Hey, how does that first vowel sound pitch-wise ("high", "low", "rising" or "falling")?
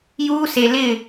high